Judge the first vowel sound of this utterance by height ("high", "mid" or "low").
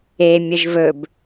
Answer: mid